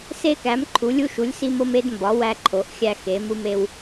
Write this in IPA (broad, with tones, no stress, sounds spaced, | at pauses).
s e˧ k æ˩˧ m ǃʰ u˩˧ lʲ u˧ ʃ u˩˧ lʲ s i˧ m o˧ m e˧ d m b ɒ˩˧ w æ˧ ǃʰ o˩˧ ʔ xʲ æ˧ x e˩˧ m u˧ m e˧ w